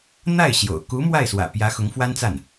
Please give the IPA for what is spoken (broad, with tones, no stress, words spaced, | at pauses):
n̪a˥˩ɪ̯ ɕjo̰˨˩ʊ̯ ku˧˥ mwa˥˩ɪ̯swä̰˨˩pjä˧˥ xʊ˧˥ŋfwa˥nt͡sa˥˩n